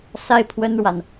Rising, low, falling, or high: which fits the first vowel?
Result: high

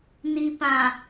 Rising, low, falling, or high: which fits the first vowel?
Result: low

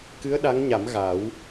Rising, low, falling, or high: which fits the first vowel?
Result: rising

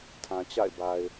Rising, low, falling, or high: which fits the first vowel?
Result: low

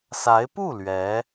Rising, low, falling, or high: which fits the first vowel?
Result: rising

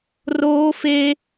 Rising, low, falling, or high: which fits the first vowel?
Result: high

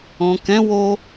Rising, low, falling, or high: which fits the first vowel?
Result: low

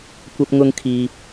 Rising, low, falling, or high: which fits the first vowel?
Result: high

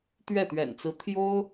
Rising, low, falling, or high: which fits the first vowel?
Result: falling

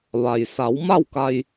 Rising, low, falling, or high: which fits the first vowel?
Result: low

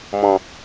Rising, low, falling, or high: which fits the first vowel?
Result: low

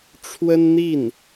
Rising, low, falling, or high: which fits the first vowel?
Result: high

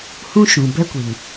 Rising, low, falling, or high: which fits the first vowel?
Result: high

